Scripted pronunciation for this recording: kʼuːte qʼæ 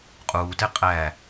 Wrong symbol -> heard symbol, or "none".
kʼ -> qʼ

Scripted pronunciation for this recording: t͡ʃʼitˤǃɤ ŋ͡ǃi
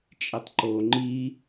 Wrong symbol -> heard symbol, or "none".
ɤ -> o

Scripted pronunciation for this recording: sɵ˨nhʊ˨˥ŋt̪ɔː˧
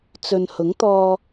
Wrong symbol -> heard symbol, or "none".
s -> t͡s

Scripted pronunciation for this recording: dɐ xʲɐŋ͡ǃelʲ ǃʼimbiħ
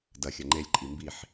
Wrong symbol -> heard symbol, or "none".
none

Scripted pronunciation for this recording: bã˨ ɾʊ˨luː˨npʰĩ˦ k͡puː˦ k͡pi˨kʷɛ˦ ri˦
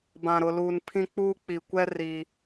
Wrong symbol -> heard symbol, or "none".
none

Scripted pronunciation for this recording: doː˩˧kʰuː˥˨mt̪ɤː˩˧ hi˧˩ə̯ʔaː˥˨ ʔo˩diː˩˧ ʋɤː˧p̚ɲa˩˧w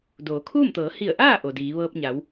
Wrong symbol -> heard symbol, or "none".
none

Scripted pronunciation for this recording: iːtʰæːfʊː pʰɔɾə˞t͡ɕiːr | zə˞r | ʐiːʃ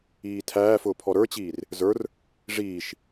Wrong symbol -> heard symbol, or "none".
none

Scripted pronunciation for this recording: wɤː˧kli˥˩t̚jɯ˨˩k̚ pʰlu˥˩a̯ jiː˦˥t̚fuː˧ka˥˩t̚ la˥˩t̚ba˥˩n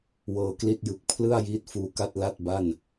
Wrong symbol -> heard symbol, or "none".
u˥˩ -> ɯ˥˩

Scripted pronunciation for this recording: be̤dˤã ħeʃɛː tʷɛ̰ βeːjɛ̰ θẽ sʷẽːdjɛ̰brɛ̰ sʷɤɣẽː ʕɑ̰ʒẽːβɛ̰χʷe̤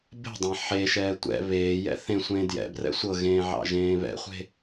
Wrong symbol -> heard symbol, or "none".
none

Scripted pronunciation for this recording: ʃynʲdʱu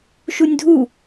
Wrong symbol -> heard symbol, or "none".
y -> u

